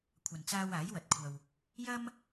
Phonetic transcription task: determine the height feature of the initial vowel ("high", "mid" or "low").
low